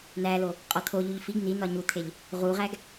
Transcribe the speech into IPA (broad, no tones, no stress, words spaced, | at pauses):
n̪ælo | qʼɒt̪ʰoʎuʎ fiɡ n̪in̪ɒ ɲut̪ʰeʎ | ʁuʁæɡ